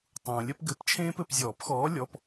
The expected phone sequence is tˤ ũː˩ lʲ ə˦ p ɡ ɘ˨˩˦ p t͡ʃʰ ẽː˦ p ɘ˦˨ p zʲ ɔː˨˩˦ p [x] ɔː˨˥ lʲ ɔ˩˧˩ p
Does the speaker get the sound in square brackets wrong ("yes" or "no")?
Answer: no